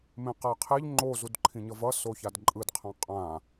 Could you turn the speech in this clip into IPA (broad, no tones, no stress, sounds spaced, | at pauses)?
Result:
m ẽ q a qʰ e ʎ ŋ͡ǃ o z u d ǃʰ ĩ ɲ ʌ v ʌ s o ç a d ǃʼ ɯ d qʰ ã qʼ ã